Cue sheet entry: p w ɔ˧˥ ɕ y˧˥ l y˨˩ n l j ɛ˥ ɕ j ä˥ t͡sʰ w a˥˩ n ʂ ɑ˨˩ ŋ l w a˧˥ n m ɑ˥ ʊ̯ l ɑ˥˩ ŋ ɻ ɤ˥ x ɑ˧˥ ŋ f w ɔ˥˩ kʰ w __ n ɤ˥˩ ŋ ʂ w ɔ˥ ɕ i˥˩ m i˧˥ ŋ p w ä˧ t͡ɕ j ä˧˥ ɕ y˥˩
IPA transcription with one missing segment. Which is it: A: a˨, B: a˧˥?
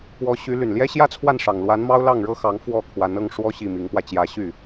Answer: B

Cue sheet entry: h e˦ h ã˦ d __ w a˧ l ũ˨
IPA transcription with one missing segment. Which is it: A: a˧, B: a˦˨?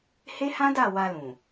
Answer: B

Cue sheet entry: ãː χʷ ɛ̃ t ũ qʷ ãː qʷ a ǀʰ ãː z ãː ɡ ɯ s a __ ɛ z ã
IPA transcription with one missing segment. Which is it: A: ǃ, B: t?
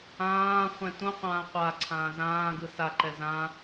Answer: A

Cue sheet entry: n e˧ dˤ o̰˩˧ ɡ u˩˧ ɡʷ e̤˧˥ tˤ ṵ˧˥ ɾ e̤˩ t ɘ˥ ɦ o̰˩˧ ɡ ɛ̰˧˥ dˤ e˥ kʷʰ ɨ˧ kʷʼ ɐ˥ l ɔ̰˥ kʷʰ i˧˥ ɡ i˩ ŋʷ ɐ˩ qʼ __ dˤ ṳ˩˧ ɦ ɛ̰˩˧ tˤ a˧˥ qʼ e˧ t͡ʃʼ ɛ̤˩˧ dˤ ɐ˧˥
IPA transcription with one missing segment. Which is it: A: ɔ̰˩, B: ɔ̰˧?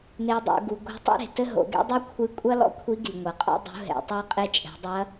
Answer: B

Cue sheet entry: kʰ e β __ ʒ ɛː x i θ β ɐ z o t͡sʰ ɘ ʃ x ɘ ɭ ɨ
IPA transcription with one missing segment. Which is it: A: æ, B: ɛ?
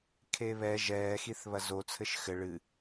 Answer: B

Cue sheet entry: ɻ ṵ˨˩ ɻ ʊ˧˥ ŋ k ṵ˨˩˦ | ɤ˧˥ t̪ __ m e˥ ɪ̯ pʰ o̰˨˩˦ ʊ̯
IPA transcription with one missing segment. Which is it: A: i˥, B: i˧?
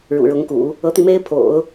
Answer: B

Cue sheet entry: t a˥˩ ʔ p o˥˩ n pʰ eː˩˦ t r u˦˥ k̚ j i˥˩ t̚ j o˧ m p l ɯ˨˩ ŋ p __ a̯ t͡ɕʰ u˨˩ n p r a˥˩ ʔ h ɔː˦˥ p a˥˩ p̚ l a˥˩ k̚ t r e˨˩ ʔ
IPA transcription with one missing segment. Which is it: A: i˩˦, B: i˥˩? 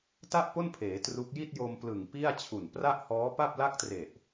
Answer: B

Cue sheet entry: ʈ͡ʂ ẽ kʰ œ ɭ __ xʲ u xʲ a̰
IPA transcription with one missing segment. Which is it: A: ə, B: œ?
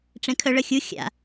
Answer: A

